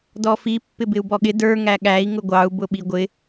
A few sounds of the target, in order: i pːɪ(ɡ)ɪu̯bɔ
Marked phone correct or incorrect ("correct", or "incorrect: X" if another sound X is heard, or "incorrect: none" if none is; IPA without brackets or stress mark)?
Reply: incorrect: b